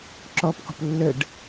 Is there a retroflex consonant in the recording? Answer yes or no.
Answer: yes